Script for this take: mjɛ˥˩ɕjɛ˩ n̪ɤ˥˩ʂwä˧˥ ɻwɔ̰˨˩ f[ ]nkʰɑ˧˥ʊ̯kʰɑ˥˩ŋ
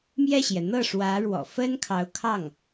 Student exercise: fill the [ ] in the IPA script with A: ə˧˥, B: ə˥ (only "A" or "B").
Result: B